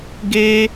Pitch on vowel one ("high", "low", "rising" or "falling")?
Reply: high